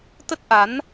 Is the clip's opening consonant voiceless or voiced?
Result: voiceless